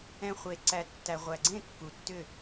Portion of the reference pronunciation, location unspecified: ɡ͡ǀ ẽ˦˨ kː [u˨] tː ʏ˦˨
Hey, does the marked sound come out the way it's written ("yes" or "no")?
yes